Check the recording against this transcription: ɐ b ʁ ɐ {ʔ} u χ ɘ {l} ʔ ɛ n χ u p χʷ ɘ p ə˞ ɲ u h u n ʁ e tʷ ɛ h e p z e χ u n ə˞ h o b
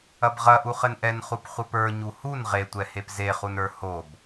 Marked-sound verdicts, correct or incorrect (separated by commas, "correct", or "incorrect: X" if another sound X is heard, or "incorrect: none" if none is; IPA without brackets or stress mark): correct, incorrect: n